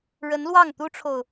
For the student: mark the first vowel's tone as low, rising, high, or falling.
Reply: rising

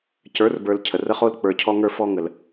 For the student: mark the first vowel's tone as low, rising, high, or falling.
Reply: rising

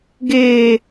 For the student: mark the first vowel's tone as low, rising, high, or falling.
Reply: low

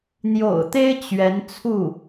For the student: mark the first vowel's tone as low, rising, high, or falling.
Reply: low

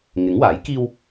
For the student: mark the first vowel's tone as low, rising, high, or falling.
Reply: rising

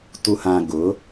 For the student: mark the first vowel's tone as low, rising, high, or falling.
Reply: low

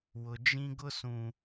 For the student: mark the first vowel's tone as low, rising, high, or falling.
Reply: low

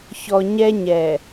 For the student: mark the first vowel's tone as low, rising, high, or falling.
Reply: low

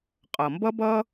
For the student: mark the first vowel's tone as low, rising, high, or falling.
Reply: low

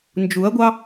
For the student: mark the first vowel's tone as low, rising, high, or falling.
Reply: rising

